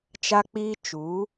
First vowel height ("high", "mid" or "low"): low